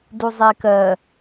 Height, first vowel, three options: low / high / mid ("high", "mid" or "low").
high